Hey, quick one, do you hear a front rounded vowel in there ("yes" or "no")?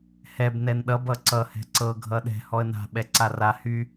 yes